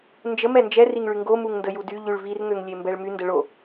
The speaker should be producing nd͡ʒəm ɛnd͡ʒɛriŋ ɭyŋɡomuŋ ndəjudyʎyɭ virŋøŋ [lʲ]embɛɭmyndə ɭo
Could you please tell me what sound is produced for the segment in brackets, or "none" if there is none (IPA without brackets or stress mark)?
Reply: lʲ